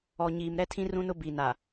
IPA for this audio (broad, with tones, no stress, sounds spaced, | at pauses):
ɔ˨ ɲ iː˨ m ɾ ɛ˦ tʰ ĩ˦ r ũ˦ n ʊ˦ b i˨ n a˨